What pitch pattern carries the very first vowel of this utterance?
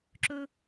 high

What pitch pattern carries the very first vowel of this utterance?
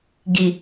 low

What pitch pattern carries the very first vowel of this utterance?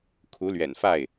rising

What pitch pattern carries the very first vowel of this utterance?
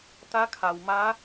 rising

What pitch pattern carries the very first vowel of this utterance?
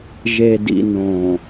low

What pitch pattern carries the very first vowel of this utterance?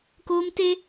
high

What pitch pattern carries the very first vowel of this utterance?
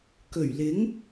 low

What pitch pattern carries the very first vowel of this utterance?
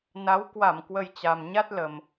rising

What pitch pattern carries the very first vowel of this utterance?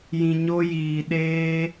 low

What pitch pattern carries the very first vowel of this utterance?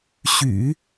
low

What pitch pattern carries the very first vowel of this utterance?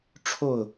falling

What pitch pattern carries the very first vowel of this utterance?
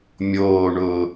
low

